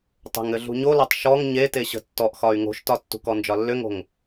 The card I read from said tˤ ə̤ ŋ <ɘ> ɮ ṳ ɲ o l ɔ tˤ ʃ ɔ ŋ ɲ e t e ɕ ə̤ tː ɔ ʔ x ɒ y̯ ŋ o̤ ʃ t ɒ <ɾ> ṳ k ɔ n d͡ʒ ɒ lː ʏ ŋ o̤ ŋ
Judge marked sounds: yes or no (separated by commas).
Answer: yes, no